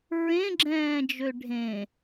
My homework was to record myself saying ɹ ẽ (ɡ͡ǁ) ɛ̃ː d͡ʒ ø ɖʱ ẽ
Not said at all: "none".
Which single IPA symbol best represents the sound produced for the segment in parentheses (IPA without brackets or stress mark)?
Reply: ɡ͡ǁ